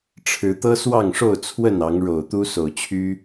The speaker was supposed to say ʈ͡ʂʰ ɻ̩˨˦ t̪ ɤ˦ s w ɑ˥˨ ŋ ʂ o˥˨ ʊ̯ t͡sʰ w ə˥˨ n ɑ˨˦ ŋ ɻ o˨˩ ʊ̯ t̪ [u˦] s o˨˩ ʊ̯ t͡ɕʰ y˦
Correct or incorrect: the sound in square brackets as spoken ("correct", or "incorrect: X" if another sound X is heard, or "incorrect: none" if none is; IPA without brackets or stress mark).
correct